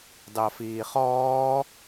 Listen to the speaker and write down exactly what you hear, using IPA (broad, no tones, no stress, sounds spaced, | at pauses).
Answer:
d ɑ f iː χ ɔː